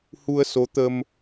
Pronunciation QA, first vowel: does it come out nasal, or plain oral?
oral